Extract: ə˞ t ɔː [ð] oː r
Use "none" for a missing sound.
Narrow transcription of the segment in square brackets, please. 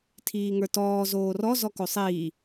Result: z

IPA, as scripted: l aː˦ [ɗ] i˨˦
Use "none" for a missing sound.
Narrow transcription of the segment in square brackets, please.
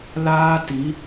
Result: t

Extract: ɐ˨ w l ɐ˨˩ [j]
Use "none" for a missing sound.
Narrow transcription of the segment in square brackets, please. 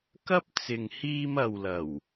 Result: w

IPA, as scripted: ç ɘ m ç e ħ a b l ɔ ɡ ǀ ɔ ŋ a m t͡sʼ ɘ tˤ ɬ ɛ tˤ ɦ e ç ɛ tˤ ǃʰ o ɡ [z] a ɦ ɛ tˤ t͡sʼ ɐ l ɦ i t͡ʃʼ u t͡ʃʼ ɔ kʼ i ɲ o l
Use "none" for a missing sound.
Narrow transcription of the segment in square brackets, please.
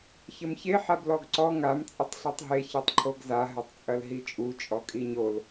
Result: z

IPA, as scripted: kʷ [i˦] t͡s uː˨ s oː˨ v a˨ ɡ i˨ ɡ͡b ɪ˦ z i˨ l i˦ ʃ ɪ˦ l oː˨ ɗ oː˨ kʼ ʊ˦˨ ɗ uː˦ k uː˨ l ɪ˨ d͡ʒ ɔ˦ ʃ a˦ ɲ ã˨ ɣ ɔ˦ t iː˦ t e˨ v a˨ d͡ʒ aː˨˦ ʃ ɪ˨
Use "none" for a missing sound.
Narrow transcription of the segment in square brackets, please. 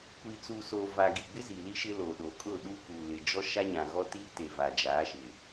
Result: i˨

